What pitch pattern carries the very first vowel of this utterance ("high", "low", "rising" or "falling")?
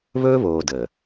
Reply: high